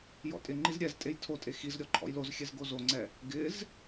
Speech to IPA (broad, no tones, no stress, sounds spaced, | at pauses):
j ɔ̰ tʼ ɪ ŋ͡ǃ i z ɾʲ ɛ z tʼ e j tʰ o tʼ e x i z ɾʲ ɔ ǃʰ ɔ̰ j l o z xʲ ɛ z ɡ o z o ŋ͡ǀ ɛ | ɡ ɪ z